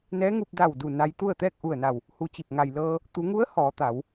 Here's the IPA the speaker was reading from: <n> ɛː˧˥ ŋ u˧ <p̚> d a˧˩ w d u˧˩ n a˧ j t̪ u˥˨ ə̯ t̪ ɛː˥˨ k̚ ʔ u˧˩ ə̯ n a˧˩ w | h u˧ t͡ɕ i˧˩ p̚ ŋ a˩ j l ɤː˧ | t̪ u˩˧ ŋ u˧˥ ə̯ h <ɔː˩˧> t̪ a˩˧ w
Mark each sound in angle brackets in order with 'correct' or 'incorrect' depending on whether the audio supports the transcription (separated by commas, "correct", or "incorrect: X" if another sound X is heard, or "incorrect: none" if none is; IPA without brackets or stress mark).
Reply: correct, correct, correct